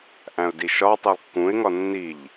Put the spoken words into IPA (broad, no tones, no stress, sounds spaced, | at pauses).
ʔ æ̃ ʊ̯ d i ʃ ɒ tˤ i lˠ kː ũ ɪ̯ ŋ ɒ nː i ʎ